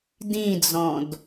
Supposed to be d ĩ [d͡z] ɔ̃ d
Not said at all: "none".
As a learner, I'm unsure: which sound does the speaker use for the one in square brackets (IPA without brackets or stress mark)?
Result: d͡z